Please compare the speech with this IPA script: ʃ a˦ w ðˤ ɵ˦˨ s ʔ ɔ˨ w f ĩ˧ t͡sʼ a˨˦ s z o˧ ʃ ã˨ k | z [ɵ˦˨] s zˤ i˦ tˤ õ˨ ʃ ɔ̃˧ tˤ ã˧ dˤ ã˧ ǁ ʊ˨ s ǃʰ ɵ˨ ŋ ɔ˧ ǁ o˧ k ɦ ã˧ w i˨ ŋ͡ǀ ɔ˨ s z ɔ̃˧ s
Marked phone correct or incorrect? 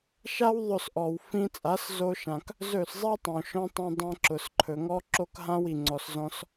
correct